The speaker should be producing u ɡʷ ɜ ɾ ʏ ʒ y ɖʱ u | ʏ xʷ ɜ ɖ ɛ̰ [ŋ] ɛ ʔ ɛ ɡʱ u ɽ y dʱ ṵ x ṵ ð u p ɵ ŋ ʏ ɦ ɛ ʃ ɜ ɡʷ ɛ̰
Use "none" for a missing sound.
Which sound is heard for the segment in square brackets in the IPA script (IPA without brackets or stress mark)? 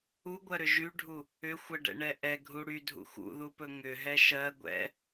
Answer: ɳ